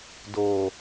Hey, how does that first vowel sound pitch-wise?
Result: low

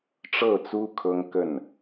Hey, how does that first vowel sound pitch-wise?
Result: falling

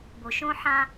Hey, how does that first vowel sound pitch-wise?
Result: low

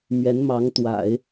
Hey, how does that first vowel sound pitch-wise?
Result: rising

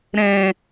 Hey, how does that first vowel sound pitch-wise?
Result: low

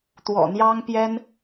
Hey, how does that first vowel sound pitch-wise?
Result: low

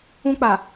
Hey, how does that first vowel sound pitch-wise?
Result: high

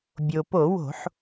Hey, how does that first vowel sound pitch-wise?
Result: low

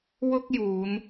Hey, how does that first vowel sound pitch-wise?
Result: high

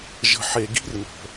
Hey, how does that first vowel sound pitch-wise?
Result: low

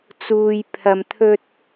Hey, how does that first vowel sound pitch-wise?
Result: low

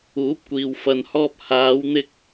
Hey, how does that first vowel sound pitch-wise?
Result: rising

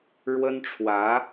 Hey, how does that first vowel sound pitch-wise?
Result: high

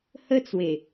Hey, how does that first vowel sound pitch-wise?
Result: high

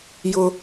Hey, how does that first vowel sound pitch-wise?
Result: high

